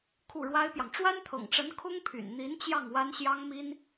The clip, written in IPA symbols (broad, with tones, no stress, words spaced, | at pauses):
kʰu˥˩ɻwa˥ɪ̯pjɑ˨ŋ ʈ͡ʂwa˥nt̪ʰɤ̰˨˩ŋʈ͡ʂə˧˥n kʰʊ˥ŋpʰy̰˨˩nn̪i˧˥nt͡ɕjɑ˥˩ŋ wa˥n ɕjɑ˥ŋmi˥n